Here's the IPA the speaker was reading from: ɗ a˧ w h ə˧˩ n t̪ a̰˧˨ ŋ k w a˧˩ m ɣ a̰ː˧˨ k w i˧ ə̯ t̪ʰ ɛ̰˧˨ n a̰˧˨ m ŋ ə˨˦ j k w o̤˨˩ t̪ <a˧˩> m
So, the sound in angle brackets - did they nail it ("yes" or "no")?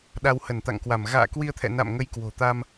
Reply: no